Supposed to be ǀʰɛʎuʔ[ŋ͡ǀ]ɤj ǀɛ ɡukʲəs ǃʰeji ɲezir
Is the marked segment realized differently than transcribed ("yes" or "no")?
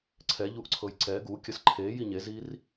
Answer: yes